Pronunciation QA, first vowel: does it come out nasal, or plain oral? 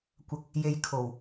oral